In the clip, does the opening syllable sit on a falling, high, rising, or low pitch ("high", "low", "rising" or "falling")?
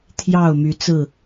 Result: falling